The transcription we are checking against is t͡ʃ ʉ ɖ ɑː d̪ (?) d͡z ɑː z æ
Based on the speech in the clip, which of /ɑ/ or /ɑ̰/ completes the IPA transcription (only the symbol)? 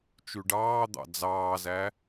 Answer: ɑ̰